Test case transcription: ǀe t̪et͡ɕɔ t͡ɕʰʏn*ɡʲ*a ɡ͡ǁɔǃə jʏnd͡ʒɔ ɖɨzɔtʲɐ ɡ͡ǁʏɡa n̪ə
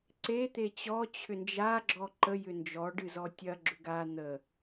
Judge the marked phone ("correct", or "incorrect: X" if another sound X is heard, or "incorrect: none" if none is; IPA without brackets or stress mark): incorrect: d͡ʒ